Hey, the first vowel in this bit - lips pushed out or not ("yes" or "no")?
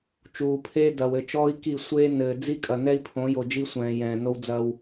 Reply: yes